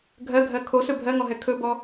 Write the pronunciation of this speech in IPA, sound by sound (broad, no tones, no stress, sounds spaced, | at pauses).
ɡʱ ɜ ɡʱ ɜ kʰ o s ɵ bʱ ɜ ŋ ɔ ɦ ɛ kʰ ɵ b ɔ